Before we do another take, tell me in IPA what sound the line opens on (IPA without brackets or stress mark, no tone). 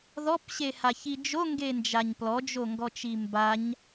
ð